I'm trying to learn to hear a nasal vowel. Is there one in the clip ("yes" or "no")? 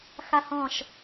yes